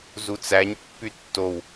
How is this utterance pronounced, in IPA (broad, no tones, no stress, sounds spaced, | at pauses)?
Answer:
z u t͡s æ ɲ pː y tː o w